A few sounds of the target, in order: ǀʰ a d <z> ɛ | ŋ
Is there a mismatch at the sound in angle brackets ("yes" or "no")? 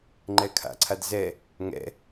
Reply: no